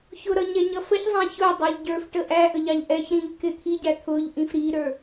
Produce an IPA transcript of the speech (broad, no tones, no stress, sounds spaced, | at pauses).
ç ʊ ɾ ʌ ɲ ɛ ɲ ʌ f ə ç zˤ æ̃ ç ʊ dˤ ʌ ʎ ɟ ə˞ f ʈ ə ʔ æ ʔ ə ʎ ɑ ʎ ʔ ɛ ç ɾ ĩ ʎ k ɪ t̪ʰ i ɟ æ t̪ʰ ʊ ʎ ʔ ĩ f ɾ i ɾ ə˞